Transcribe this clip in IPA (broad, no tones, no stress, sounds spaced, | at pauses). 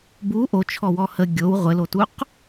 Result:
b u ʔ o t͡ʃʰ ɔ w ɔ h ə ɡʲ o w ʁʷ ɘ l o t u q